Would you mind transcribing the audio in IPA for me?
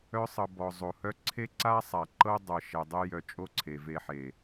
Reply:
œ˧ sˤ ɤ˨ b ɔ˨ zˤ o˨ h œ˦ ǀʰ e˦ ǀ a˦ sˤ a˨ ǃ ɤ˦ dˤ ɤ˨ ʃ ɛ˨ dˤ e˦ j œ˧ t͡ʃʼ o˦ ǀʰ e˨ v e˧ ħ e˨

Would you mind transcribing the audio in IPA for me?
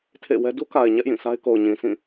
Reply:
tʰ ḛ˦˨ w ɛ˦ d u˦ k a˨ ɪ̯ ɲ ɛ˦ ʔ j ĩ˦˨ s a˦ ɪ̯ k o˨ ʊ̯ ɲ ĩ˨ s ĩ˦˨

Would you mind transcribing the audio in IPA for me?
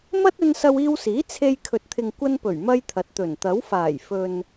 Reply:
m ɐ˥ t̚ ɵ˧ n s ɐ˧ w iː˧ w s iː˨˥ t͡sʰ e˧ j kʰ ɵ˨ t̚ t̪ʰ ɪ˨ ŋ kʷ ɐ˧ n p ɵ˨˩ ɥ m ɐ˥ j t̪ʰ ɐ˨˥ t̚ t̪ ɵ˨˩ n t̪ ɐ˨˥ w f aː˨˩ j f ɵ˨ n

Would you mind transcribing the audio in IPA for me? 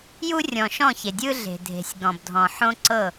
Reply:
j u˦ rʲ ɔ̃˨ ʃ ɔ̃˦˨ ç e˨ dʲ ɯ˦ ɮ e̤˨ dʱ e̤˨ sʲ ɡ ɔ̃˨ b dʱ ɔ̃˨ ħ õ˦ ǀ ɤ˦˨

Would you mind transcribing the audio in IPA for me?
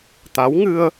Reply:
t̪ a˧˥ w ŋ ɨ˧ ə̯

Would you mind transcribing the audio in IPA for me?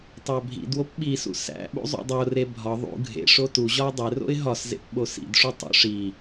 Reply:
tˤ æ bʱ ḭ d w o p ɓ i s ṵ s æ̰ ɓ ṵ zˤ ṵ dˤ o r e bʱ ɒ ðˤ ṵ ɡʱ ḛ ʂ o t u ʑ ɒ ʊ̯ dˤ e r o̰ ɪ̯ ɦ ɒ s z ḛ p ɓ o s ḭ d ʂ u tˤ o̰ ʂ i

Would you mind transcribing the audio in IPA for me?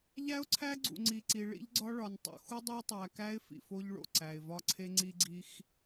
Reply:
ʎ æ˦ ʊ̯ ǀʰ æ˦ ɡ͡ǀ ṵ˨ ŋ͡ǀ i˨ ǀ i˨ ɭ ḭ˦ ʎ ɡ͡ǀ ɒ˦ ɭ ɒ˨ n tˤ o̰˨ x u˦ dˤ o˦ tˤ æ˨ k æ˦ ɪ̯ f ḭ˨ f o˦ ʎ ɭ o̰˨ ǀ æ˨ ɪ̯ v ɒ˦ ǀʰ e˦ ŋ͡ǀ i˦ ɡ͡ǀ i˦ x

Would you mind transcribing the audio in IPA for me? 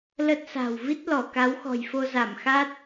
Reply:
l ə˦˥ t̚ s a̤˨˩ w v i˦˥ t̚ l ɔ˧˩ k a˨˦ w x ɔ̤˨˩ j f o˧ z a˧˩ m x a˦˥ t̚

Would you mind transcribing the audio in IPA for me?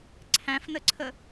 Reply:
ǀʰ æ̃ f n ə ǀʰ ə

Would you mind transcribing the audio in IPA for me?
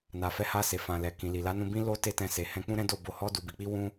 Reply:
n a˨ f ɛ˨˦ h a˧ s e˨ f ã˨ l ɛ˨ k ĩ˨ l i˨ l a˨˦ n ũ˧ b ĩ˦ l o˦ t e˦˨ t ɛ̃˧ s e˨ h ɛ̃˧ k͡p ũ˦ ɾ ɛ̃˦ d o˦˨ b o˧ h ɔ˦ d u˧ b i˧ k͡p i˦ w ũ˦

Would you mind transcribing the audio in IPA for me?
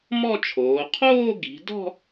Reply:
m ɔ˥˧ t͡ʃʰ oː˩˧ qʰ oː˥˧ ɡ i̤˩˧ d ɔ̤˥˧

